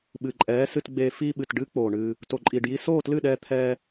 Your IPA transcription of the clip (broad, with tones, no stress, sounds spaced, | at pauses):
ɓ ɨ˨ ǃʼ ɛː˨˦ s ɨ˧ t ɡ͡b eː˧ f iː˧ ɓ ɨ˨ t ɖ ɨː˦ k͡p oː˨ ɳ ɨː˧ | t o˨ ǃʼ iː˨ ɖ j i˧ s oː˦˨ t l ɨ˦˨ ɗ ɛː˧ t̪ʰ ɛː˧